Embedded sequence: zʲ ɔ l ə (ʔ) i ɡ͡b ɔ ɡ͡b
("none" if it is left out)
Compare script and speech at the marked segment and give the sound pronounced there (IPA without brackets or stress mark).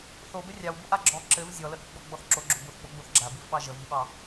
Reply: ʔ